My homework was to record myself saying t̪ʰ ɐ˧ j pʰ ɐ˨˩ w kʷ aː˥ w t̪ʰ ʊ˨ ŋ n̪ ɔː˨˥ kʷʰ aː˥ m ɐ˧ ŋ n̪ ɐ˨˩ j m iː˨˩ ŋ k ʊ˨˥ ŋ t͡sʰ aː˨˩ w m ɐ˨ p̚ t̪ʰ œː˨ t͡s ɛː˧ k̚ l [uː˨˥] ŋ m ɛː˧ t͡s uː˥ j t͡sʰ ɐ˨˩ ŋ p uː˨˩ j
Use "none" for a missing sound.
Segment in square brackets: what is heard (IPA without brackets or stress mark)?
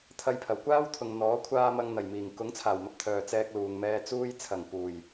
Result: uː˨